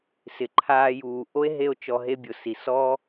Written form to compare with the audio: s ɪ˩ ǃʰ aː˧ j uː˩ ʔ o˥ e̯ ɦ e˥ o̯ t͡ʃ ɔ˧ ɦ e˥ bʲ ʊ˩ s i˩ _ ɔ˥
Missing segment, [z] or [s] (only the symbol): s